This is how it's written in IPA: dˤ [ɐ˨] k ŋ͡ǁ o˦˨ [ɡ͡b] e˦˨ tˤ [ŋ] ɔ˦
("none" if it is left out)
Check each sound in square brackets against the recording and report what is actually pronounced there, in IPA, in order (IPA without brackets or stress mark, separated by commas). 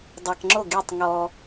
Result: a˨, ɡ, ŋ